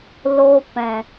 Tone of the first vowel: high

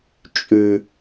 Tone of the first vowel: high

